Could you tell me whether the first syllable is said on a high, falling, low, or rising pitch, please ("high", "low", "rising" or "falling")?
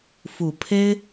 low